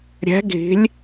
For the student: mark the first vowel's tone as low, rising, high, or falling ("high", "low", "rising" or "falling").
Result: rising